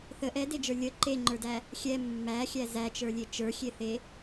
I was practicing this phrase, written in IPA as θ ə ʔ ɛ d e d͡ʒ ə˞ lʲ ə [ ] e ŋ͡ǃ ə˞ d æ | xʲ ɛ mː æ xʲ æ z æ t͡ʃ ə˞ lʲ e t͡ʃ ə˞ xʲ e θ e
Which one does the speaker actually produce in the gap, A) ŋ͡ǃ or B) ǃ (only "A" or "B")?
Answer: B